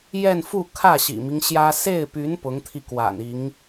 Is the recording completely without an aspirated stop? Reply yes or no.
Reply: no